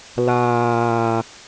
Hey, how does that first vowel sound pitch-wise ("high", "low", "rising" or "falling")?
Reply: low